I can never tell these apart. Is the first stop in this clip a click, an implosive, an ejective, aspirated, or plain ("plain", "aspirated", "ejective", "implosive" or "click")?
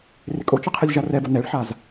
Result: ejective